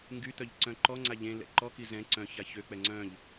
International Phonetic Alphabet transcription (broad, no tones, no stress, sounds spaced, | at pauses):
ŋ ɡ y t̪ œ ʎ ǀ œ̃ ǃ ɔ ŋ͡ǀ a ʎ ẽ l ɛ̰ ǃ ɔ k i z ɛ̃ ǀ œ̃ ç a ç ø k͡p ɛ ŋ͡ǀ œ̃ ʎ